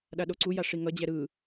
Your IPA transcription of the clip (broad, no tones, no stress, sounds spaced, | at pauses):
ɗ a ɗ o ǀ u j a ʂ i ŋ ʌ d͡ʑ ɛ ɾ ɯ